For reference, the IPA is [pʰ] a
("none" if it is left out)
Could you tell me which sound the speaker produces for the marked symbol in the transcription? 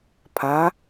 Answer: pʰ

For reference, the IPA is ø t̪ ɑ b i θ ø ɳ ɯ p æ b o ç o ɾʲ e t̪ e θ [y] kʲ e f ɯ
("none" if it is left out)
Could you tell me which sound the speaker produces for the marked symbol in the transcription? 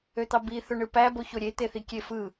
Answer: i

